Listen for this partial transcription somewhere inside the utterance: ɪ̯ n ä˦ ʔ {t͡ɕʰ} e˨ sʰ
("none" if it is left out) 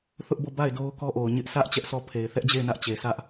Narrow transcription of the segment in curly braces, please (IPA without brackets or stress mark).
t͡ɕ